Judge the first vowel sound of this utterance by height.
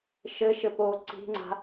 mid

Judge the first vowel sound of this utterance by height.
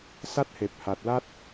low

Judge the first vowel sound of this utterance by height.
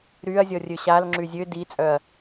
high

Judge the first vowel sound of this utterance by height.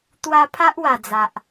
low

